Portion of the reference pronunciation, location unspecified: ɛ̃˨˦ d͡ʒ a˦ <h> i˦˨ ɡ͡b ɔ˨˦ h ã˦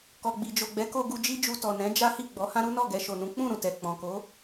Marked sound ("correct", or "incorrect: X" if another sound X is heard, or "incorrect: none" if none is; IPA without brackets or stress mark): correct